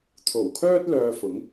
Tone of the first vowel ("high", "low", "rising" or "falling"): low